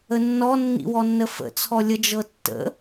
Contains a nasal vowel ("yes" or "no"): no